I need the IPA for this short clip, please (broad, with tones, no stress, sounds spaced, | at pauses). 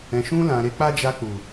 ɛ̃˨ ʃ ũ˧ l ã˨ ɾ e˨˦ k͡p a˦ d͡ʒ a˧ k͡p u˨